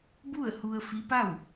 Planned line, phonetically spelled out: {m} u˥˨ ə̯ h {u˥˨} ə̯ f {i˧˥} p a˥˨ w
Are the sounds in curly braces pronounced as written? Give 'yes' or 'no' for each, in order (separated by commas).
no, no, yes